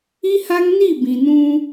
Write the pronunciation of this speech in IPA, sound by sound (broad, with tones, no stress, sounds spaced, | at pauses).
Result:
i˦ h a˦ ŋ n i˦˨ b ĩ˨ n ũ˦